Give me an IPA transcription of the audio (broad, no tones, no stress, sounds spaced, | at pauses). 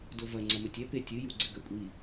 d o v ɐ ŋ͡ǀ ɐ m ɘ tʲ ɛ p e tʲ ɨ j u ɡ͡ǀ ɘ ɡ ɐ kʷʼ i